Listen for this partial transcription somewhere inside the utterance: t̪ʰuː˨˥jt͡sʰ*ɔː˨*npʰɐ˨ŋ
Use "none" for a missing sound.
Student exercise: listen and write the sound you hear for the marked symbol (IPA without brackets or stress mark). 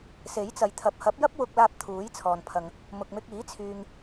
ɔː˨